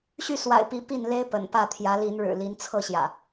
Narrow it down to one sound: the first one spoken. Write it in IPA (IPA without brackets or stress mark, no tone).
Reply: ɕ